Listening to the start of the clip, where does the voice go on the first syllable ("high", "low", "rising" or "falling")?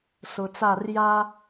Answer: low